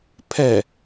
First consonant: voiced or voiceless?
voiceless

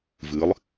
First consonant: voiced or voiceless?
voiced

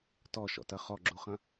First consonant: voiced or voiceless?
voiceless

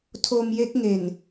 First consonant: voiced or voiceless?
voiceless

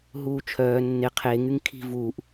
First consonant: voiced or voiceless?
voiced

